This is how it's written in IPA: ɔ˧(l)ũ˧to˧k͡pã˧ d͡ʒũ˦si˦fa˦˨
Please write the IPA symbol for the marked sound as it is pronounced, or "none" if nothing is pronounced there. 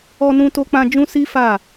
n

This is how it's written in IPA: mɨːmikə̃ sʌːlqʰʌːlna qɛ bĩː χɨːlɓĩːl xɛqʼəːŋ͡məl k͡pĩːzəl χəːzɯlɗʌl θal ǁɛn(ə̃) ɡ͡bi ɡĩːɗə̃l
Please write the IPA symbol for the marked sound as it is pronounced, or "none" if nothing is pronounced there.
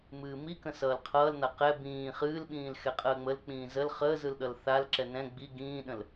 ɛ̃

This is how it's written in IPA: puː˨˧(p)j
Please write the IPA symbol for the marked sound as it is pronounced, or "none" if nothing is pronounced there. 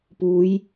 none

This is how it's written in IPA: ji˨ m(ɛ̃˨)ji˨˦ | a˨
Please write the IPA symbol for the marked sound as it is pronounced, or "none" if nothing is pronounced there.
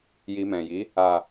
ɛ̃˨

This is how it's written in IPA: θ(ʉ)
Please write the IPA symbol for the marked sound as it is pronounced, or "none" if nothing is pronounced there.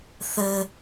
ɘ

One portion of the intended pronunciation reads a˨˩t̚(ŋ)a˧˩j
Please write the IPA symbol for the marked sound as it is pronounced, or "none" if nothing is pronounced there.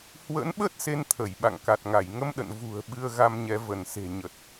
ŋ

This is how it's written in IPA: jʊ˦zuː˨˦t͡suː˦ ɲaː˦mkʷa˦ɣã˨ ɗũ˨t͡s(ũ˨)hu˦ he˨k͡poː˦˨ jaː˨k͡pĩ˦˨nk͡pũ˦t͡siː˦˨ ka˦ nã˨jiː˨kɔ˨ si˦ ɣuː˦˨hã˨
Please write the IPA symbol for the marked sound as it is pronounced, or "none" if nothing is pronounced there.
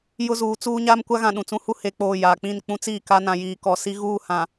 ũ˦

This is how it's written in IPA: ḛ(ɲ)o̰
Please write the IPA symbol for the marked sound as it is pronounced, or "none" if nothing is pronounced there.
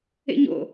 ɲ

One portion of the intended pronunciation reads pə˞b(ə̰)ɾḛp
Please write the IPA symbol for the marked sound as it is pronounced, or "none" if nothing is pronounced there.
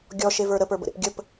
ə̰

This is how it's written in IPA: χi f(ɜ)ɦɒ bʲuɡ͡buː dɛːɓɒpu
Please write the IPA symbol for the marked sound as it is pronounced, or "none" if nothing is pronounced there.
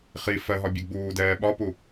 ɜ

